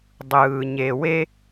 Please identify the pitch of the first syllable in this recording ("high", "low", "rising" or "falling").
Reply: low